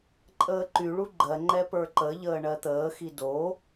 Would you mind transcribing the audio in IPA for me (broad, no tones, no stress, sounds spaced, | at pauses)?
ǃʼ əː ǃ y ɭ u ɡ͡ǃ ɜ ŋ͡ǃ ɛ p ə˞ ǃ ə ʎ əː ɳ ɜ t̪ əː x i d o